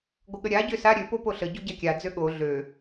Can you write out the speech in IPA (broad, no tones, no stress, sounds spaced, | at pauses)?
ɡʷ ə ɠ ə ɾʲ a ɟ ø s a ɾʲ ø p o p o ɬ ə ɟ o ɟ a kʲ a d͡z ø ɠ o ɮ ø